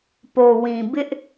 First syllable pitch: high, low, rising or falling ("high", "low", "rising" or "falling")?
low